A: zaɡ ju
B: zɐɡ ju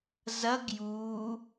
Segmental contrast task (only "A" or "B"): B